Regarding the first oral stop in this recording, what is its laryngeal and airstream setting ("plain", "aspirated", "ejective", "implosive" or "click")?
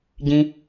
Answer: plain